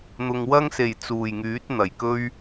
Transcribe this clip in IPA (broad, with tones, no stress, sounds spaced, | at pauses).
n̪ ʊ˨ ŋ w ɐ˥ ŋ s e˨˩ j t͡s uː˨˩ j ŋ yː˨˥ t̚ n̪ ɐ˨˩ j k ɵ˥ ɥ